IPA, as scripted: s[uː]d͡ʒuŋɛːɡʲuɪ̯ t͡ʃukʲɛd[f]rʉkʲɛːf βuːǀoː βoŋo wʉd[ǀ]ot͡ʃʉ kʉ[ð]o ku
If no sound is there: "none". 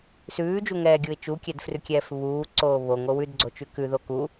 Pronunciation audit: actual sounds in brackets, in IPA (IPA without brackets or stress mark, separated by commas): ʉː, f, ɡ͡ǀ, ð